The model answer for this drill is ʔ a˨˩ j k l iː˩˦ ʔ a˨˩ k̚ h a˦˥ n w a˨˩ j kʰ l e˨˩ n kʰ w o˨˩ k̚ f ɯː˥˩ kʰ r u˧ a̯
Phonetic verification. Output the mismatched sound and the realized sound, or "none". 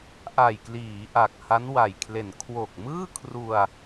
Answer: f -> m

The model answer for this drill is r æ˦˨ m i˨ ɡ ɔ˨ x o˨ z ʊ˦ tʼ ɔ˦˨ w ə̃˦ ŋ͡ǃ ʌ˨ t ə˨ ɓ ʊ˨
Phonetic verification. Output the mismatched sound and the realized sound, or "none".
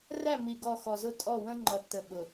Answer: o˨ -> ɔ˨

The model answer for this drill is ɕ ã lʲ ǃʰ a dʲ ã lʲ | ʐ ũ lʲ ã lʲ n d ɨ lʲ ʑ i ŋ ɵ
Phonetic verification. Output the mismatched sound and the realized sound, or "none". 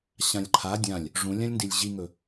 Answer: ɨ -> i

